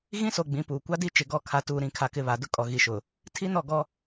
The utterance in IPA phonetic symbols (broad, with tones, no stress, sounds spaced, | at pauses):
ɣ ĩ˦ s o˨ ɡ͡b ĩ˨˦ p uː˨ kʷ a˦ d i˦ t͡ʃ ɪ˨ ɡ ɔ˦˨ kʰ a˨ t uː˨ ɾ ĩ˨ kʰ a˨ k ɪ˨ β a˨ d ʊ˦ kʼ ɔ˨ ɣ i˨ ʃ ʊ˨ | tʰ i˦ n ɔ˦˨ ɡ ɔ˦